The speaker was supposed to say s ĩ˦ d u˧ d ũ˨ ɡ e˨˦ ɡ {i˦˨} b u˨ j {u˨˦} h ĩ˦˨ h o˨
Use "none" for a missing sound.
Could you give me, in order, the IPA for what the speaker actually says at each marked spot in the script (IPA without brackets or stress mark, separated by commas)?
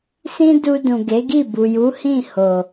i˦˨, u˨˦